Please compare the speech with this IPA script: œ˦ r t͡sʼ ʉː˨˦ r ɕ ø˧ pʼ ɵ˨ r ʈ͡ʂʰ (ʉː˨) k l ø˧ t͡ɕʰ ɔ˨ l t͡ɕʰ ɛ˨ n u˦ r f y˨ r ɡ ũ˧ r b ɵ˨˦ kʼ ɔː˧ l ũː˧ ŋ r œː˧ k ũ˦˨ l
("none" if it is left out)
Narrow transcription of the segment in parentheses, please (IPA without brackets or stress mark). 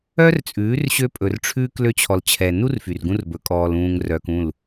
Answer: ʉː˧